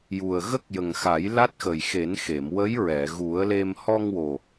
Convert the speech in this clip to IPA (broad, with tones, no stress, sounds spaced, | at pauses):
j u˨˩ ə̯ ɣ ə˦˥ k̚ j ə˨˩ ŋ x a˨˩˦ j l a˦˥ t̚ x ə˨˩ j x e˨˩˦ n x e˨˩˨ m w ə˧˥ j ɹ ɛ˨˩˨ ɣ u˨˩˦ ə̯ l e˧ m h ɔ˧ ŋ w o˨˩